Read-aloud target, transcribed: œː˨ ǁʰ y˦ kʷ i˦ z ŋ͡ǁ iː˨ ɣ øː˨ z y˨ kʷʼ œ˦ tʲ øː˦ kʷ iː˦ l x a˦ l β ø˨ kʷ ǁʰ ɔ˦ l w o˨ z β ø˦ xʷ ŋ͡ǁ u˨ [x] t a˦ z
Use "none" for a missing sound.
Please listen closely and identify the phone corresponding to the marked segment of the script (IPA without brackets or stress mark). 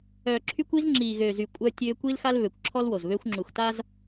x